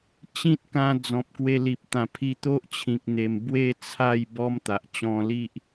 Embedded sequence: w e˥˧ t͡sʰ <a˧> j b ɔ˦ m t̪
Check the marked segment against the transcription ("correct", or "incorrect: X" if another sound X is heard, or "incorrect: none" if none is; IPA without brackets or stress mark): incorrect: a˥˧